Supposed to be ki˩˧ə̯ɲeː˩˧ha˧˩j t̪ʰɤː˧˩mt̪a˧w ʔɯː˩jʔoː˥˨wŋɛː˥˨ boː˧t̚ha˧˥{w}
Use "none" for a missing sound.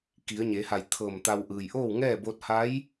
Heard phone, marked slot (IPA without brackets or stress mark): j